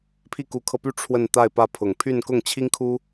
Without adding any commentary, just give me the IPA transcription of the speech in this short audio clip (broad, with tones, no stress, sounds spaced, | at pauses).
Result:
pʰ i˥˩ k u˧˥ kʰ ɤ˧ p y˥˧ ʈ͡ʂʰ w ə˥˧ n t̪ a˥˧ ɪ̯ p ä˥˩ pʰ ʊ˨˩ ŋ pʰ y˥˧ n k ʊ˥˩ ŋ t͡ɕʰ i˥ ŋ kʰ u˥